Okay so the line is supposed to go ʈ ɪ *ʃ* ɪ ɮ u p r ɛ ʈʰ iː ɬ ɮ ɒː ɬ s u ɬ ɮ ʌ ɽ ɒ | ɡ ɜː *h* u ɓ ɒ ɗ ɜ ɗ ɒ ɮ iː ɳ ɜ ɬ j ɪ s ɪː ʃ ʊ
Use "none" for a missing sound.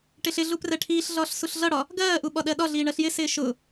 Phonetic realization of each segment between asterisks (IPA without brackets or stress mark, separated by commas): ɬ, ʔ